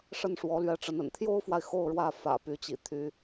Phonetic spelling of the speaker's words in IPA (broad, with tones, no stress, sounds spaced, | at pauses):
ʂ ə˥˩ n ʂ w ɔ˧˥ l ɥ ɛ˧˥ ʈ͡ʂ ə˧˥ n ə̰˨˩ n t̪ʰ j o˥ ʊ̯ f w a˨ ɪ̯ x o˥˧ ʊ̯ ɻ w ä˥˩ f ä̰˨˩ p y˧˥ t͡ɕ ḭ˨˩ t̪ʰ y˧˥